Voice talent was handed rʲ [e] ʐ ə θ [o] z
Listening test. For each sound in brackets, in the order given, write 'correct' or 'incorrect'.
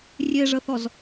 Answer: correct, incorrect: ɔ

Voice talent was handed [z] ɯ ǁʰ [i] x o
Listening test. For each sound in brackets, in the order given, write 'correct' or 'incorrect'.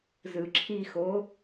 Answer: correct, correct

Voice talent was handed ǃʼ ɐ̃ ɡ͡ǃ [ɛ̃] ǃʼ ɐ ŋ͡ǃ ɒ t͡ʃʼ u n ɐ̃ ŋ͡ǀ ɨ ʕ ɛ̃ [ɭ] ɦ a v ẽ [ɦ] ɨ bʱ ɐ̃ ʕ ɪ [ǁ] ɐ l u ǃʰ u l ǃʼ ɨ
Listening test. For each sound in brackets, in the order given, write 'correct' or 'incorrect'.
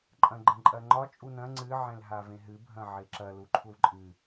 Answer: incorrect: ə̃, incorrect: l, correct, correct

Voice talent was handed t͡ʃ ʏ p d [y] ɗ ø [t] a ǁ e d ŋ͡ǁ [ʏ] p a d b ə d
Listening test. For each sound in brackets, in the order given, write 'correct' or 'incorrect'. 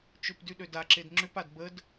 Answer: correct, incorrect: d, correct

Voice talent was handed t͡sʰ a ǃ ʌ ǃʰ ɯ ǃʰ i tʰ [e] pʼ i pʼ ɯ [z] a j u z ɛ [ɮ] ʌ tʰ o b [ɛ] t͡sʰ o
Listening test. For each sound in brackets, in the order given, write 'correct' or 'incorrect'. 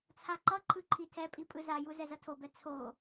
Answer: incorrect: ɛ, correct, incorrect: z, correct

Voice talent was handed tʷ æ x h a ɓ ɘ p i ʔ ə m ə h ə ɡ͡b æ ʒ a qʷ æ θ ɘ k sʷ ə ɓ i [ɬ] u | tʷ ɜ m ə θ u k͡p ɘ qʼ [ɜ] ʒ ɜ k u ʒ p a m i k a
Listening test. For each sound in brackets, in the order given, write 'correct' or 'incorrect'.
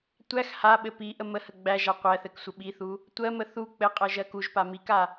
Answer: incorrect: θ, correct

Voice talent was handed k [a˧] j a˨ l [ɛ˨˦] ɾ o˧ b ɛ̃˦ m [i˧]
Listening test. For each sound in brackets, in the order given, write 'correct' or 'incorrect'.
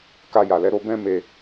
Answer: correct, correct, incorrect: e˧

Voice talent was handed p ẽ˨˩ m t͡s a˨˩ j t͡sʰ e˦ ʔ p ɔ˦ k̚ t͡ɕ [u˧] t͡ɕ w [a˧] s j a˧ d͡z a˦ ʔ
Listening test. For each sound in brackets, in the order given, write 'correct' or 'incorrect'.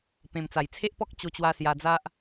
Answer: incorrect: o˧, correct

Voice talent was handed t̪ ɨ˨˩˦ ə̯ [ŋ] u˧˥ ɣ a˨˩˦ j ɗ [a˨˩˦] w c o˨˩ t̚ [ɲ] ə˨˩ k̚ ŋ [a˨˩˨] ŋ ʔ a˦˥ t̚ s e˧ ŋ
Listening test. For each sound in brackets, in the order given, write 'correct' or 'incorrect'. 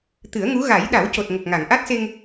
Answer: correct, correct, incorrect: ŋ, correct

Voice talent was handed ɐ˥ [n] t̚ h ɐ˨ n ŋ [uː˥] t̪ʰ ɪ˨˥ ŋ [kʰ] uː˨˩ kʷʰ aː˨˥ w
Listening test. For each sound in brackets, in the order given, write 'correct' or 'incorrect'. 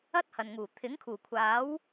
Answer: incorrect: none, incorrect: uː˨˩, correct

